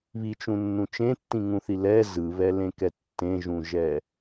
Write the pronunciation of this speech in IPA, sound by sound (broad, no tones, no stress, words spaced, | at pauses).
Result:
βit͡ʃũnːũ t͡ʃẽtːĩŋũθi lɛ zɯβɛlẽkɛ tːẽʒũʒɛ